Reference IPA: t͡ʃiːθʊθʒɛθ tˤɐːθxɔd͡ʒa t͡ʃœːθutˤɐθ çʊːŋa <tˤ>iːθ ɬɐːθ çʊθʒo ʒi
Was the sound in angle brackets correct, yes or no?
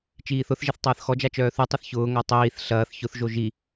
yes